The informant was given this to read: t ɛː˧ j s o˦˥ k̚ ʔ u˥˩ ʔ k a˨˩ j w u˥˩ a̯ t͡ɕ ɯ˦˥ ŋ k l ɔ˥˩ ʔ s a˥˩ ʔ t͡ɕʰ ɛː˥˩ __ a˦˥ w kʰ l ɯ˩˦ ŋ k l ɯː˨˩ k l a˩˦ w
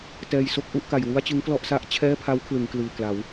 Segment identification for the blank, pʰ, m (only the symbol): pʰ